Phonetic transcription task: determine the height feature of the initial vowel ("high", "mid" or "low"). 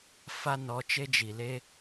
low